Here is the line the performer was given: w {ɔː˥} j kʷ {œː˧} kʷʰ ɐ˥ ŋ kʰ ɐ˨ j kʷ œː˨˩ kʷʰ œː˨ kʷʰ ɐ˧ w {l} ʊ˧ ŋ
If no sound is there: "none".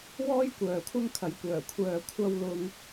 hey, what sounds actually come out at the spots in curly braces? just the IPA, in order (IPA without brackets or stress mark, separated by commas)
ɔː˥, œː˨, l